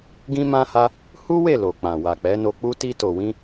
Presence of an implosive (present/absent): absent